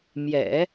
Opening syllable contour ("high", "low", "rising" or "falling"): low